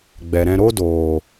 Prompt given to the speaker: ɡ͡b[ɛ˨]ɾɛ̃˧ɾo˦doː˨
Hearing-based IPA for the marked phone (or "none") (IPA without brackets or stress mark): ɛ˨